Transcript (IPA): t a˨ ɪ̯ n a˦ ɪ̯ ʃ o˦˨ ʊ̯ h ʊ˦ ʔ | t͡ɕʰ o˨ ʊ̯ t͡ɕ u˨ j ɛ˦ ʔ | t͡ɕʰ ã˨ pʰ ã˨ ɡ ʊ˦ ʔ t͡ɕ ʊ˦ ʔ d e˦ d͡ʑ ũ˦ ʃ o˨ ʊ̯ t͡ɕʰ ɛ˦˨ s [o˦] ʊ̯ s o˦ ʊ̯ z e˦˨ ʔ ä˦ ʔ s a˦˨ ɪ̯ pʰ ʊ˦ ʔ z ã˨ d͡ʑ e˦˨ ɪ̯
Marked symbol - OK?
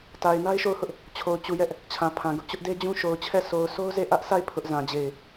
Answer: no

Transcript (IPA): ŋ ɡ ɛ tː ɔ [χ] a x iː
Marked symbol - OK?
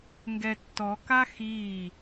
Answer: no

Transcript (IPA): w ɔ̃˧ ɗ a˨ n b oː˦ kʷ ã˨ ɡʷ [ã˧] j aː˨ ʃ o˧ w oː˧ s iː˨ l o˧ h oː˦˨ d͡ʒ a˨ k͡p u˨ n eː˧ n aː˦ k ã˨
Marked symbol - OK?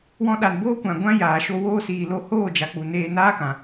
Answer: yes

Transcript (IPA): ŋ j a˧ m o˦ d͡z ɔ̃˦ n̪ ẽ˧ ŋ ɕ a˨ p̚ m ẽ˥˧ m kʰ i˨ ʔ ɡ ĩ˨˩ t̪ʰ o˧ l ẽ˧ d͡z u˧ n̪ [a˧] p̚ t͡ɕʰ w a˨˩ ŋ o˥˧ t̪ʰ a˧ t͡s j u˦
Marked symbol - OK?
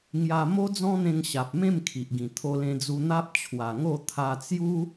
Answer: no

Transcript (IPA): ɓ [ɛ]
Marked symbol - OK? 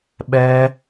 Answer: yes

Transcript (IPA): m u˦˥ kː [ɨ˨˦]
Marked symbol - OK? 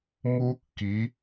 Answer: no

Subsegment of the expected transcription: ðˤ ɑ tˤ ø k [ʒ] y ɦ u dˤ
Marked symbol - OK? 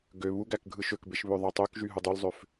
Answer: yes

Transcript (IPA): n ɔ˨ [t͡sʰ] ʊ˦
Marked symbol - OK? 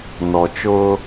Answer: no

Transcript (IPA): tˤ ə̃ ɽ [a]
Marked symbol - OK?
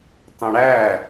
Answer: no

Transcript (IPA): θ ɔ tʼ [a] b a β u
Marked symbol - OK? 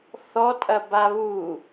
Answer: no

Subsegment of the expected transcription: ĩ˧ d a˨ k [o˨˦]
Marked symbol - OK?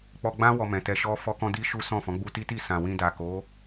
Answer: yes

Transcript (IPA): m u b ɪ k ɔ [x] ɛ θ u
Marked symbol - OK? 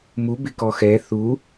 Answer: yes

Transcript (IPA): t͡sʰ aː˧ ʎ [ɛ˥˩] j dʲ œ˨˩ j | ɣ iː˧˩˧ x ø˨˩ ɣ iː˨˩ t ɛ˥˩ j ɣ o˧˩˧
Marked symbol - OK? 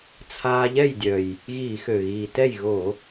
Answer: yes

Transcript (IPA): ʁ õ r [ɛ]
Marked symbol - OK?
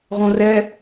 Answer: yes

